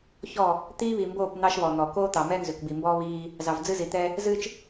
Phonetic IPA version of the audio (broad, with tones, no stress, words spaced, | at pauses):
çɔ˦˨ | t̪iː˦ βi˨mboː˦˨p n̪ɑ˦ʃβɔ˨n̪ɔ˨ koː˦t̪ɑ˨mɛ˦ nzʏ˨kbi˨mbɔː˦ βiː˦ | zɑ˨vd͡zɨ˦zi˨t̪ɛ˦ | zɨː˦t͡ʃ